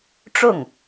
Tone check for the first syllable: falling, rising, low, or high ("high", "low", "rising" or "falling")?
falling